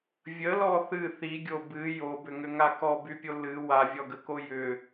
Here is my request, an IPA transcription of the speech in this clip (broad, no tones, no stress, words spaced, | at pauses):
vʲəlɔ θɨ θiɡʲo bɨ jobʏŋʏŋa kɔbypʲo lɨ wavʲɔɡəko jʏ